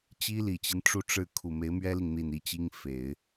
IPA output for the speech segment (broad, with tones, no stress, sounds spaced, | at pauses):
t͡ɕ i˥ l i˨˩ t͡ɕ i˦ n ʈ͡ʂ u˥˧ ʈ͡ʂ ɻ̩˥˩ kʰ u˨˩ m e˧˥ ɪ̯ m ɥ ɛ˥ l i˨ ŋ n̪ i˥˧ n i˥˩ t͡ɕ i˥ ŋ f e˨˩˦ ɪ̯